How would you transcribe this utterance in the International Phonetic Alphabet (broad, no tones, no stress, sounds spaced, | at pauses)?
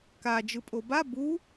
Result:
k a d͡ʒ ɯ pʼ o b a b u